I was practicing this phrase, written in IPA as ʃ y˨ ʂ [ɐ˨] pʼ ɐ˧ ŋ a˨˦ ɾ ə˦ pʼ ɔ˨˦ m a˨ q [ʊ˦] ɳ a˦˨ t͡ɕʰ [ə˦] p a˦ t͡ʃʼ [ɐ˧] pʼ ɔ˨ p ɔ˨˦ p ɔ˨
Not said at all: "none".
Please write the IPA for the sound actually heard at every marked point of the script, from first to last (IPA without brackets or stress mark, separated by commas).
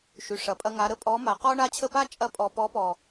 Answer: ɐ˨, ɔ˦, ə˦˨, ɐ˧